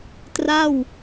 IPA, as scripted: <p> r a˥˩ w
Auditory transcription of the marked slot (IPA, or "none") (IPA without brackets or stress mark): t